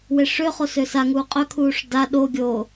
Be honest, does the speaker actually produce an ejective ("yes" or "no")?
yes